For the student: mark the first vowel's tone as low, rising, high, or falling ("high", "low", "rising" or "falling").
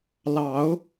rising